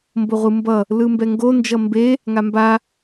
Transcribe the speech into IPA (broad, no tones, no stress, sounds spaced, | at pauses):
m b o ʁʷ ɯ m b ʌ | l ɯ m b ɛ ŋ ɡ o n d͡ʒ ʌ m b e | ŋ a m b a